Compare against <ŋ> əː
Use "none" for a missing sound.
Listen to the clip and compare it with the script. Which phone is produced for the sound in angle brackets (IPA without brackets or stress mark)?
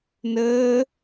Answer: n